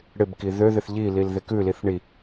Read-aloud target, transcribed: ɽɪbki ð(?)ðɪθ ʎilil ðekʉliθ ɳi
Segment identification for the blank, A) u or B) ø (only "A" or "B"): B